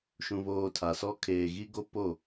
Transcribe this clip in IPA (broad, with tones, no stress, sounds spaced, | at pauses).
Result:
ʃ ũ˨ β oː˨ tʰ a˨ s ɔ˦ kʰ eː˨ ɣ i˦ ɡ o˦ p o˦˨